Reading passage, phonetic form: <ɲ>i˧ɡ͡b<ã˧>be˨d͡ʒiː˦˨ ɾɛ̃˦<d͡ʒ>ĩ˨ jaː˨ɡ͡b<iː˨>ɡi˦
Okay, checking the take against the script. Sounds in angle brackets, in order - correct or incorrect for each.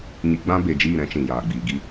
correct, incorrect: ã˦, incorrect: t͡ʃ, correct

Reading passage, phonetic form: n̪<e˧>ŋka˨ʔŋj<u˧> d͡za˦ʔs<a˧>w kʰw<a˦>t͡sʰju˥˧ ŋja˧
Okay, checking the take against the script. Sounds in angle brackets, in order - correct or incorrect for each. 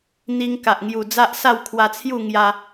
incorrect: i˧, incorrect: u˨˩, incorrect: a˥˧, incorrect: a˧

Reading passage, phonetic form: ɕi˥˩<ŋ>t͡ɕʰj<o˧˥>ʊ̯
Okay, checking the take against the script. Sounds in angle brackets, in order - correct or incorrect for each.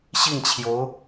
correct, correct

